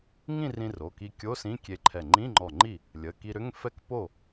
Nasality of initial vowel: nasal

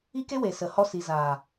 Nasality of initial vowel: oral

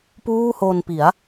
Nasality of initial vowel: oral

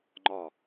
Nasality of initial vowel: oral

